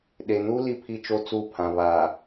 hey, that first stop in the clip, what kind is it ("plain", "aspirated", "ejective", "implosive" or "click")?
implosive